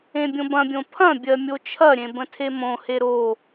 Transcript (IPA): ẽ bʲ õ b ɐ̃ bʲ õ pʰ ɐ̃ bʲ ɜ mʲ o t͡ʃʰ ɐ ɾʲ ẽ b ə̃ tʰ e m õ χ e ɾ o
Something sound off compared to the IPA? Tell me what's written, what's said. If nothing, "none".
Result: χ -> h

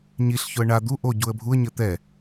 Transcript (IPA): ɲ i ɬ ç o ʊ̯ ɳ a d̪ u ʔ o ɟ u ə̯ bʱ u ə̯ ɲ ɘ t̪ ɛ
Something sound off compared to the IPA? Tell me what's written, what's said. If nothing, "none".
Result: ʊ̯ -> ə̯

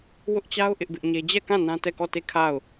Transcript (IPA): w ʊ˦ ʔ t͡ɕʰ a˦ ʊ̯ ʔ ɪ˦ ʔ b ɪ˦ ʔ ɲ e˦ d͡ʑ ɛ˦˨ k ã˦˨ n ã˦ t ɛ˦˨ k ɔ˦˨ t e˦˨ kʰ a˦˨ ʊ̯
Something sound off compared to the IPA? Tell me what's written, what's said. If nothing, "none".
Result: t͡ɕʰ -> t͡ɕ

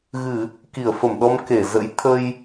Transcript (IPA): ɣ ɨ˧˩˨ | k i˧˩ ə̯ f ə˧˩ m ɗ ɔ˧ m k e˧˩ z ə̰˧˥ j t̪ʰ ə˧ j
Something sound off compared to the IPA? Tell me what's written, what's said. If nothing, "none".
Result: none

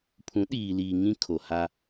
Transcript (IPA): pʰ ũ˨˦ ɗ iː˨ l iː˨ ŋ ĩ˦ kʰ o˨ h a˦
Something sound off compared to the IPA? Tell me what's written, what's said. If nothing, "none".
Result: none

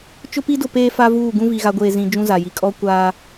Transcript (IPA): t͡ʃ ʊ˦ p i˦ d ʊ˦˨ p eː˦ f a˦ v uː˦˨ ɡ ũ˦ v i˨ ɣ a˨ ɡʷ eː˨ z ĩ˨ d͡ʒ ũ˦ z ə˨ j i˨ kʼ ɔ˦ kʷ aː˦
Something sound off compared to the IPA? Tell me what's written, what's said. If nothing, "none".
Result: ə˨ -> a˨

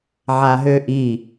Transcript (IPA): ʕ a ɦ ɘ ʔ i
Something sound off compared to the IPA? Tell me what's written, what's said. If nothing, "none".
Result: ɘ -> ø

